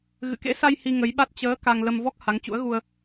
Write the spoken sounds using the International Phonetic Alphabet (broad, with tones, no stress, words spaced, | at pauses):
ɣɨ̰˧˨kḛ˧˥sa˧j hi˧ŋə˨˦jɓa˦˥t̚ t͡ɕəː˨˦ ka˧ŋ lə˧m vɔ˦˥k̚ ha˨˦ŋt͡ɕṵ˧˥ə̯ɣu˧ə̯